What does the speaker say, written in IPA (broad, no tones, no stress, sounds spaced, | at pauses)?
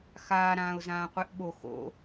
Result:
x aː ɾ ãː ʊ̯ z ãː qʷ e ʔ ɓ o x o̰